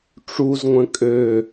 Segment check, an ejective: present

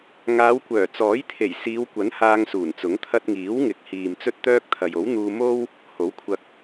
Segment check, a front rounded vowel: present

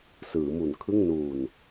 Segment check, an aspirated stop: present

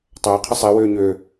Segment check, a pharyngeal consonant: absent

